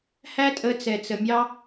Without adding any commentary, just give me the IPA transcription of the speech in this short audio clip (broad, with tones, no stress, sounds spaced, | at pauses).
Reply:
h æ˦ tʼ ə˧ t͡s ɛ˨ t͡s ə˨ mʲ ɑ˦